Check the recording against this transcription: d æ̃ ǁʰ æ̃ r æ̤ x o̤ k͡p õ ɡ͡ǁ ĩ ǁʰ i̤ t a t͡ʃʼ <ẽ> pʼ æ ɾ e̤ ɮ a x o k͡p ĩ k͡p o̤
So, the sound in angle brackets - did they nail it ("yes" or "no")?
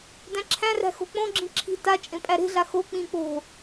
yes